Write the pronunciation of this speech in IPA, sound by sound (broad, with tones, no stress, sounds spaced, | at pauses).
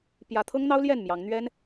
p j ä˨˦ t̪ʰ ɤ˦ ŋ n̪ ɑ˦ ʊ̯ l j ɛ˥˨ n m j ɑ˨˦ ŋ n̪ ɥ ɛ˦ n